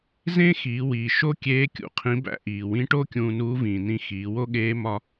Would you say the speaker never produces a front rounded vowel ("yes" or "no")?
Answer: yes